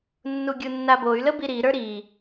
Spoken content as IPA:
nː u ɡʲ u nː a b o y̯ l ə b i ɾ i ɾ ə˞ ɾ i

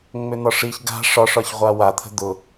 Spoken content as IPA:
ŋ͡m ʏ n̪ ɒ ʂ i ç ɡ a̤ ʂ ɒ ʂ ɒ ç ʁʷ a w a t̪ʰ ə̤ d̪ ʊ

